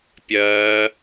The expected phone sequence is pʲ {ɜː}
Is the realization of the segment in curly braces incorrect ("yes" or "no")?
no